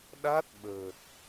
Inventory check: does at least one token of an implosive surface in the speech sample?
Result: yes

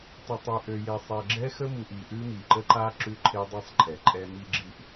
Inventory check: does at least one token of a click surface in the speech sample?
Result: yes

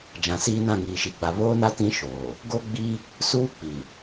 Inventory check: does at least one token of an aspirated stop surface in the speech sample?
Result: no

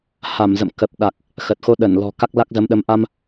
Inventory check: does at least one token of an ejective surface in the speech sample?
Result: no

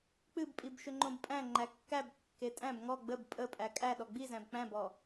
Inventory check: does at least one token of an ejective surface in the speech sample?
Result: yes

